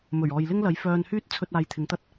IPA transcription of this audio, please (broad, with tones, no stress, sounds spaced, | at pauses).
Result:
m ɵ˨˩ ɥ ɔː˨ j l ɪ˥ ŋ l ɐ˨˥ j f œː˧ n h yː˥ t̚ t͡sʰ ɵ˧ t̚ aː˧ j t̪ʰ ɪ˨˥ ŋ t̪ ɐ˥ t̚